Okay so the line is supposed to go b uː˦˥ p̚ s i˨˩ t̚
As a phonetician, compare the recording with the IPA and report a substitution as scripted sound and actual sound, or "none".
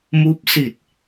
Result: b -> m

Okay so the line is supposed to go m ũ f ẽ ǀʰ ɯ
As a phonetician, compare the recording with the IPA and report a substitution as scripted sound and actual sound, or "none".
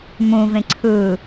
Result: f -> v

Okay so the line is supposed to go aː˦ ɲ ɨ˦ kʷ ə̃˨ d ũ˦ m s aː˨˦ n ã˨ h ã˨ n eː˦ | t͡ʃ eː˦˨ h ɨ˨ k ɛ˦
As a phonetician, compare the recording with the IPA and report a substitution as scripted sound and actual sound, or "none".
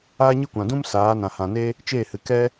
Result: ə̃˨ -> ã˨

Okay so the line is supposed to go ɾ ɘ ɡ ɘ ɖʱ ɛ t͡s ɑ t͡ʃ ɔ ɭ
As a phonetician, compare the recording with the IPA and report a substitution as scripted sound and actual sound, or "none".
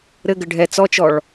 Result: ɑ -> ɔ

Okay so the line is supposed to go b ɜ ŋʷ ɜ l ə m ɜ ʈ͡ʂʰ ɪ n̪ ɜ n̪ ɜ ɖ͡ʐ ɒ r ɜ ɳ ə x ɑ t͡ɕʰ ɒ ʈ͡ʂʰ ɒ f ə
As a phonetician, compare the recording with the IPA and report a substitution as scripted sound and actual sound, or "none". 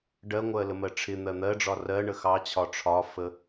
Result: b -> ɖ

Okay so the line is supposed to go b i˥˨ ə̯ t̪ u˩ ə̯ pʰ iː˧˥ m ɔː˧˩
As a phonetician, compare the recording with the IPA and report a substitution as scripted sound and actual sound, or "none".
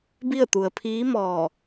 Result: none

